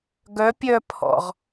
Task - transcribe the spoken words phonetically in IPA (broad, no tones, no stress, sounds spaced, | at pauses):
ɡ œ pʲ œ pʰ ɔ̰ ʁ